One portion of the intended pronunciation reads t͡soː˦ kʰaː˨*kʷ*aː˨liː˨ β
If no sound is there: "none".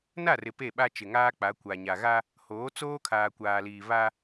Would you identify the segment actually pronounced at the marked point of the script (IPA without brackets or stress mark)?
kʷ